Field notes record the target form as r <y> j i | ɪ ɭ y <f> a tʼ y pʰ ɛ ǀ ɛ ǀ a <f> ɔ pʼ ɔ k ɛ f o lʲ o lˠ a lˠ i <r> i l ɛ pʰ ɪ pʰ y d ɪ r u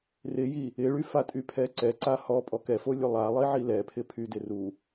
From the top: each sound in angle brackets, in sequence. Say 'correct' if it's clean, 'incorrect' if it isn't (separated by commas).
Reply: incorrect, correct, incorrect, incorrect